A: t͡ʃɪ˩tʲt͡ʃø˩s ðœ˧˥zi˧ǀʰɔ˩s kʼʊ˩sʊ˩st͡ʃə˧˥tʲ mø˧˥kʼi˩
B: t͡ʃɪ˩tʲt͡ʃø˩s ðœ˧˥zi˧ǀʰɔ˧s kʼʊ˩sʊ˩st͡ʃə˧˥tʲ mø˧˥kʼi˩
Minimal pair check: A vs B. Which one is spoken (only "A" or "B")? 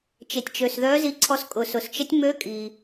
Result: B